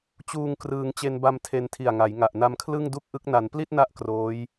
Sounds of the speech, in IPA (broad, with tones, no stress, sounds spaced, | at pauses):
t͡ɕ uː˧ ŋ k r ɯː˧ ŋ t͡ɕ e˧ n b a˧ m tʰ e˧ n tʰ i˨˩ a̯ ŋ a˩˦ j ŋ a˨˩ ʔ n a˧ m kʰ l ɯ˥˩ ŋ d u˥˩ k̚ ʔ ɯ˦˥ k̚ n a˩˦ n p l i˥˩ t̚ n a˦˥ ʔ k r oː˦˥ j